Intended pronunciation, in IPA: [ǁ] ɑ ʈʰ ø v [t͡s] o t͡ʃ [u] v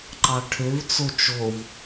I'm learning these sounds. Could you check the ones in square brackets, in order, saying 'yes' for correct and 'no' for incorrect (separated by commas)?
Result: no, yes, no